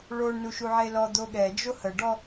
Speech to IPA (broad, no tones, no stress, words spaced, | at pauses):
ɭoɳ nuʃuʕelɔ d̪oɠɛd͡ʒo həɖɔ